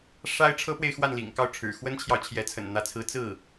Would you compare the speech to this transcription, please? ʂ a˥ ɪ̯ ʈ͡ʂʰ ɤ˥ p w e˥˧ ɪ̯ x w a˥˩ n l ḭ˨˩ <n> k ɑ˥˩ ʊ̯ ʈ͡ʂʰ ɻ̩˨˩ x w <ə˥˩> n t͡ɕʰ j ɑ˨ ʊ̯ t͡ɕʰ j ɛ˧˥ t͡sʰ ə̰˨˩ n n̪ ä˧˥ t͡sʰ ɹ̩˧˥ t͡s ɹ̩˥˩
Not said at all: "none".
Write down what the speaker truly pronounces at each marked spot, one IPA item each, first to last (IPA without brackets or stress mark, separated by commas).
ŋ, ə˥